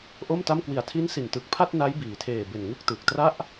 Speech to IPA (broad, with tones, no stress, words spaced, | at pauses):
ʔo˥˩mta˥˩m kwi˨˩a̯tʰi˦˥nsi˨˩ntɯ˨˩k̚ pʰa˥˩t̚na˦˥j biː˨˩tʰeː˨˩be˨˩nŋɯ˦˥k̚ tɯ˨˩k̚tra˥˩ʔ